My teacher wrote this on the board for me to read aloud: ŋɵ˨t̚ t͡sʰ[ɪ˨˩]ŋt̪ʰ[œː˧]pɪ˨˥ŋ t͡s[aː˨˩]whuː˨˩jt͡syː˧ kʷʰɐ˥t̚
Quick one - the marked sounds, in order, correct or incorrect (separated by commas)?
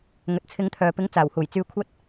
incorrect, incorrect, correct